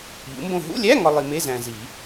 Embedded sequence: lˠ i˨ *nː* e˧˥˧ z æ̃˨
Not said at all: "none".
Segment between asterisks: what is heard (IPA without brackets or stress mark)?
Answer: m